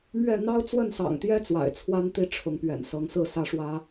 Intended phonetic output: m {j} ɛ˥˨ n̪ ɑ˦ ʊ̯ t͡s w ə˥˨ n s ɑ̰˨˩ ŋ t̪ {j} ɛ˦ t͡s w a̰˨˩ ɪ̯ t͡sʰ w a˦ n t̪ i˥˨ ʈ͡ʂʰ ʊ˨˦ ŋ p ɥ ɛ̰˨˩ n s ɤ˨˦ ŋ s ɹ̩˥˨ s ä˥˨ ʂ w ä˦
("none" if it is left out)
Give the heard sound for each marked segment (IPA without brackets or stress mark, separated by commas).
ɥ, j